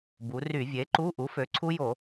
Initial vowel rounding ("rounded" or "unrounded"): rounded